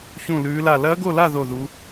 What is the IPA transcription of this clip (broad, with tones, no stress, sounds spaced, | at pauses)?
ç ũ˥˧ l ʉː˦˥ l a˥˧ l ɐː˦˥ ɡ o˥˧ l a˥˧ ð o˥˧ ð u˦˥